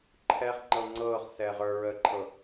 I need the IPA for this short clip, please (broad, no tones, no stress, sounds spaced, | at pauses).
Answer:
ǃʰ ɛ ʁ ŋ͡ǃ ɤ ŋ͡ǀ ɤː ʁ s ɛː ʁ ə˞ ɹ əː ǃʰ ɤ